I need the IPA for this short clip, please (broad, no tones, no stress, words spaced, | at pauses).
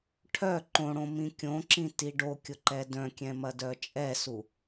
ʈʰœ ǃõɽõ mĩkʲõǁĩ tiɖokʲʊ ǃɛdœ̃kʲɛ̃ mɐdœt͡ʃʼɛsu